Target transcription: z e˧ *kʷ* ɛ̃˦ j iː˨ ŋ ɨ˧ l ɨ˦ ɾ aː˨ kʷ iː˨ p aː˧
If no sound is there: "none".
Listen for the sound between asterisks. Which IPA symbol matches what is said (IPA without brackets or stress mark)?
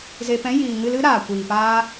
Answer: p